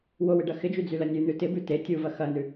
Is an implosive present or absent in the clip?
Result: absent